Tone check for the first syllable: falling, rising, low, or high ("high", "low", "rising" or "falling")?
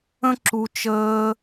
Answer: high